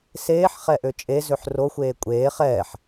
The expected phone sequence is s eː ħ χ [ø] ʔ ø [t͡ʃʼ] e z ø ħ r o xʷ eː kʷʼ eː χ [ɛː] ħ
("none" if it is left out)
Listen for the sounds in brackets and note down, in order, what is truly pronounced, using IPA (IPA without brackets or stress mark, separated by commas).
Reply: ɛ, t͡ʃʼ, ɛː